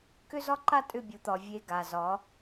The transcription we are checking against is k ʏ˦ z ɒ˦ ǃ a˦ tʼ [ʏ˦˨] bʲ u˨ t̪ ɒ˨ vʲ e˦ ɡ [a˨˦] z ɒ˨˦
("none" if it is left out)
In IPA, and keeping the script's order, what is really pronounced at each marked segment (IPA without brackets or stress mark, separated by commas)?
ʏ˦˨, a˨